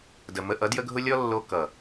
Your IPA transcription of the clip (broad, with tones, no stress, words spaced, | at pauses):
də˨ mə˧ ʔʌ˨˦djə˦ɡʱʊ˦ lʲɔ˦lːo˧ kʌ˨